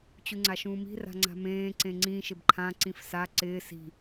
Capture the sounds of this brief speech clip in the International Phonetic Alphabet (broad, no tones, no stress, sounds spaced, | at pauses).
t͡ɕ u ŋ͡ǀ a ʃ ũː m i̤ r a̤ ŋ͡ǀ a̤ m ẽː ǀ ẽ ŋ͡ǀ ĩ ʃ ɪ b ǃʰ ã ǀ ĩ f s a ǀ ɪː s i̤